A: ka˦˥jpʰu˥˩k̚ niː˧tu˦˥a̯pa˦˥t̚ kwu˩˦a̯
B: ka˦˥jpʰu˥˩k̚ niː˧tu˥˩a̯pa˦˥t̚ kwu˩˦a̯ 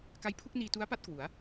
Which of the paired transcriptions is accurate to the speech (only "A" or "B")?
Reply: A